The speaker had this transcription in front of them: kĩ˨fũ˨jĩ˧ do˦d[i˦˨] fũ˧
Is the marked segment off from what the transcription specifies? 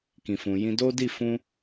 no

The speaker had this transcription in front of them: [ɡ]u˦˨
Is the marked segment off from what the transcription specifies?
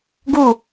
no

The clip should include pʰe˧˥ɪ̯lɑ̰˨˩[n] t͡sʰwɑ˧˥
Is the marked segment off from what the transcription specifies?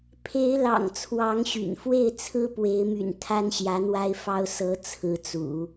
yes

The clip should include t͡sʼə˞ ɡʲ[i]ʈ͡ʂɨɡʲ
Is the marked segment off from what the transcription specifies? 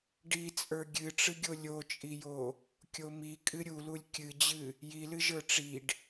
yes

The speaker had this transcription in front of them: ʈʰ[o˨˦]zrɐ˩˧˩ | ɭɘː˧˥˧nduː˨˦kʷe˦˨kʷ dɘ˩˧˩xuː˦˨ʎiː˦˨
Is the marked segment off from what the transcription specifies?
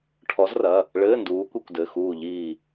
yes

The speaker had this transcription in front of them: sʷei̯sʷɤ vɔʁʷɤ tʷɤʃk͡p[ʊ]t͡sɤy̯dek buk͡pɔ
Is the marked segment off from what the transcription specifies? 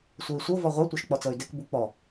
yes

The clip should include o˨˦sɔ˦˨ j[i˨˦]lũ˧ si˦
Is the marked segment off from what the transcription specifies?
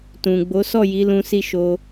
no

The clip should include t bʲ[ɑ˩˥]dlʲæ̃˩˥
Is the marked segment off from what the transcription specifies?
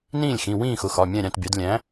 no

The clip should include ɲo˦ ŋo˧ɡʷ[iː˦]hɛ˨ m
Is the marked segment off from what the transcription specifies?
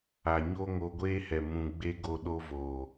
yes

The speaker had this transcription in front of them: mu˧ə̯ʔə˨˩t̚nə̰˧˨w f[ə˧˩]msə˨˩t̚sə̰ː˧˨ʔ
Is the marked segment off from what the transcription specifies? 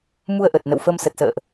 yes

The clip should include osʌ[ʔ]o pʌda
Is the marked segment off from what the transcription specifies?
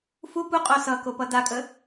yes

